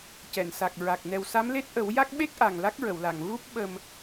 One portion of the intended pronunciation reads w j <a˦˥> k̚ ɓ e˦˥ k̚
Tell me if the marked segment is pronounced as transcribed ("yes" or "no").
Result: yes